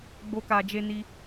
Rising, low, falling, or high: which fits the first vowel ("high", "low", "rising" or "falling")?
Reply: high